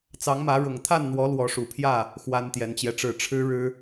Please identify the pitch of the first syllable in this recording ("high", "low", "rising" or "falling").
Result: rising